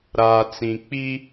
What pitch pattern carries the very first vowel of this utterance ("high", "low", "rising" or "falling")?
low